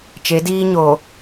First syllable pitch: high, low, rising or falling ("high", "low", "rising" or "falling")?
rising